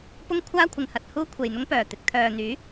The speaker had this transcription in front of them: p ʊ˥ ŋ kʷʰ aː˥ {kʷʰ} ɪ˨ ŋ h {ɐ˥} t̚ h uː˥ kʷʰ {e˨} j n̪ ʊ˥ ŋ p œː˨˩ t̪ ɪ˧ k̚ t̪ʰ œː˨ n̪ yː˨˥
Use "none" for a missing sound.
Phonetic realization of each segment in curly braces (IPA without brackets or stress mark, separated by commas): kʷʰ, ɐ˧, e˨